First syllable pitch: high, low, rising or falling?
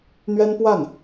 high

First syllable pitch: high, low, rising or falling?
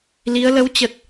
rising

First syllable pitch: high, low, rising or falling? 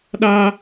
high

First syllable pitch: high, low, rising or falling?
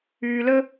low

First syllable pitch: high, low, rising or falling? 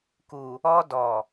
low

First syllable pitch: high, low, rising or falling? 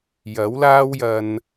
rising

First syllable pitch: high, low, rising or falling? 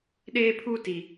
high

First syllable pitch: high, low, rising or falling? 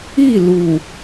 falling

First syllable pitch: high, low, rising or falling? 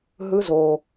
rising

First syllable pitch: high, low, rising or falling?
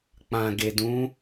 low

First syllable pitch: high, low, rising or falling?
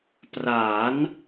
rising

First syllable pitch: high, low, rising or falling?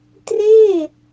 falling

